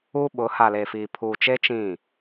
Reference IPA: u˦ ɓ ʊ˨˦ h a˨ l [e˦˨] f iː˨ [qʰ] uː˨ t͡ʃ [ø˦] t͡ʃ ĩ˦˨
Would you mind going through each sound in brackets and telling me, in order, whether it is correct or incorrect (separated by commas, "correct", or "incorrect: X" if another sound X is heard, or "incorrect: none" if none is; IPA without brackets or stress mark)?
incorrect: e˨, incorrect: pʰ, incorrect: e˦